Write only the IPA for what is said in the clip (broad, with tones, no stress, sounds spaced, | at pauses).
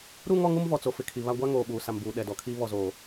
ɾ u˦ ŋ ɔ˦ ŋ u˦ m v ɔ˨ t͡s o˨ f ɪ˨ kʰ i˨ β a˦ ɡʷ a˦ ŋ oː˨ ɓ uː˨ s a˨ m b uː˨ ɗ ɛ˨ d ɔ˨ kʰ iː˦ β ɔ˦ z oː˦